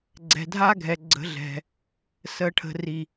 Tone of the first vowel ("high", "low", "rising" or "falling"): low